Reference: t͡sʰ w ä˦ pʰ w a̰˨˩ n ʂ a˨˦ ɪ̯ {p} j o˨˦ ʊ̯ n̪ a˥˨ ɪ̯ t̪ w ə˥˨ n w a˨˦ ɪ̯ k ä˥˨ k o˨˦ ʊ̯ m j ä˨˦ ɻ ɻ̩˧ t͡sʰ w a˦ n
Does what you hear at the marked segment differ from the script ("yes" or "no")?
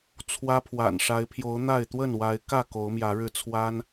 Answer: yes